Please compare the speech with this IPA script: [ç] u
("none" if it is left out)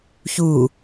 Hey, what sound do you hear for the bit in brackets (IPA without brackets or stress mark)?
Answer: ç